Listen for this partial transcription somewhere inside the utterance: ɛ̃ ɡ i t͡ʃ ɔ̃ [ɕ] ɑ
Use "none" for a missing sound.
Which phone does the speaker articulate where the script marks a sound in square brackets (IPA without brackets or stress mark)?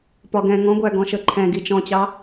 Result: t͡ɕ